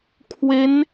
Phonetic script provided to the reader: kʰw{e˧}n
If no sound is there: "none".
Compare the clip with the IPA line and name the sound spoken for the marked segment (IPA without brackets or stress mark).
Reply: e˦˥